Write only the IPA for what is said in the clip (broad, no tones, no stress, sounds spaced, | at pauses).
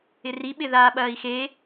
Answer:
ɪ r i ɓ ɪ ð aː ɓ ɐː i̯ x e